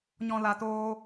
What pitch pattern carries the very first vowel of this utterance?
low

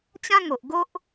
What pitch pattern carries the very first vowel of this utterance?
high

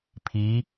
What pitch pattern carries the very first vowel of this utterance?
rising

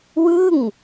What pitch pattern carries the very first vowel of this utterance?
falling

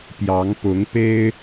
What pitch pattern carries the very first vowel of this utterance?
rising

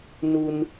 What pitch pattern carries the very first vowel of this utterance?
low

